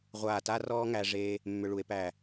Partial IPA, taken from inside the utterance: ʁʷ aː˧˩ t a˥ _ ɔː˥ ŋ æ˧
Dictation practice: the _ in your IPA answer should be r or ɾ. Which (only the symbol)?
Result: r